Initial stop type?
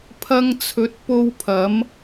aspirated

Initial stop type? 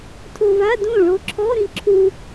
aspirated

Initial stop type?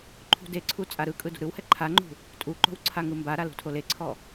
click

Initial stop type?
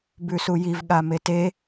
plain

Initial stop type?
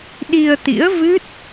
implosive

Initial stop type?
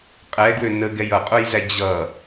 ejective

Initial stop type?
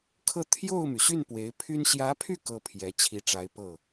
aspirated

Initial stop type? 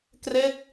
plain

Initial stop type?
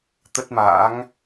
plain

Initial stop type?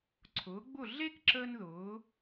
click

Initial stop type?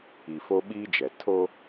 implosive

